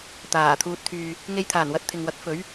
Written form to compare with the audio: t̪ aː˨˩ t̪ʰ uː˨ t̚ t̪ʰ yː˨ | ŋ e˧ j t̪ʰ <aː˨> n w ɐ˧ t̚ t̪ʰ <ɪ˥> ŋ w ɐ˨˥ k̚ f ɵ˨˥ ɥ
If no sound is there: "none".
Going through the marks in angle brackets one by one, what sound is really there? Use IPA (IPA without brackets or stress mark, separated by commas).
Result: aː˨˩, ɪ˨